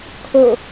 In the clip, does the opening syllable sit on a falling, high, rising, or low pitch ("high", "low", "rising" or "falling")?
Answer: falling